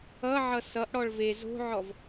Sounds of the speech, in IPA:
ʌʕʌ sʌʔɽɔɭ ve zo̤ʕɔv

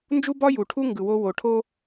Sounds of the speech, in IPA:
nd͡ʒu˦bɒ˦ ju˨ʈʰu˦ ŋɡɯ˨wo˦ wo˨ʈʰo˦

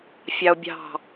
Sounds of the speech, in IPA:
fʲɑo̯bʲɑ̤

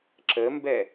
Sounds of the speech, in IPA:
ǁəmbɛ

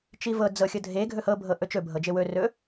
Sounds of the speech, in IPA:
t͡ʃivɤ d͡zɤxʲɤdʱe ɡʱɵhɤ bʱɤʔɵt͡ʃɵ bʱɤd͡ʒewɵ rɵ

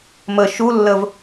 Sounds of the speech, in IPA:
mə ʃulːəv

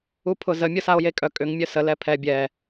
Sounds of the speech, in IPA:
upʰʊzə mʲʊsao̯jekʼœ kʼʏŋ mʲœsə lɛpʰɛ bʲɛ

